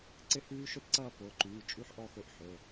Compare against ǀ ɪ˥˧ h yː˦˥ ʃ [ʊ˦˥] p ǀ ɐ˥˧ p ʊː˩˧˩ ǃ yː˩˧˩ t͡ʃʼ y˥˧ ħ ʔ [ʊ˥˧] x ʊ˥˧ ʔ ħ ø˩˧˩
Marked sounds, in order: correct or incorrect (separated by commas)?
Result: incorrect, incorrect